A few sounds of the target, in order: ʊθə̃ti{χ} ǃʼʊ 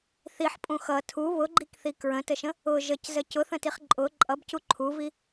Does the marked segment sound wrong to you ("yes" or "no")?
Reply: no